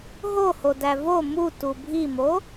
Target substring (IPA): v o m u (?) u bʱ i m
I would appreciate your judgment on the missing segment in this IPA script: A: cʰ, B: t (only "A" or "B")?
B